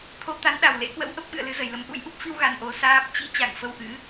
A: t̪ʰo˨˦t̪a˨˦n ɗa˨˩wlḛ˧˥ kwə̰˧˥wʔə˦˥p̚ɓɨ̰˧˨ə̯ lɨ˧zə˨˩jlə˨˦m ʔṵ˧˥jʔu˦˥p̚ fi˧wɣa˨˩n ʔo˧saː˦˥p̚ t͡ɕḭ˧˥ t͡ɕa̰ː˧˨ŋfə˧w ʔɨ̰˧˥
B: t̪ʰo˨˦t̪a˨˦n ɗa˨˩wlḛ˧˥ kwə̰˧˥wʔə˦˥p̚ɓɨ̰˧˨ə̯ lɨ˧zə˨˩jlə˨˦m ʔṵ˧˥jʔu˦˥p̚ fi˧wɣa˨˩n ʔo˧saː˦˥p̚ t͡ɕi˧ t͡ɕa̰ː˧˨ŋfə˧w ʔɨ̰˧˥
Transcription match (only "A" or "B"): A